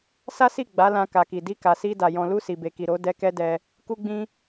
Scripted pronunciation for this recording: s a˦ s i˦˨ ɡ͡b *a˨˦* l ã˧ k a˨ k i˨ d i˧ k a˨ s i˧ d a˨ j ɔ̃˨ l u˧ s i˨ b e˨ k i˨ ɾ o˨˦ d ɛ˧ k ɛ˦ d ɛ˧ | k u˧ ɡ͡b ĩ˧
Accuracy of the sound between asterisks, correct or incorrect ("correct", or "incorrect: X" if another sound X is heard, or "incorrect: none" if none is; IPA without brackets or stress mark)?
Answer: correct